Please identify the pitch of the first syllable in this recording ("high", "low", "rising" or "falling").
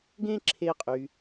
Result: high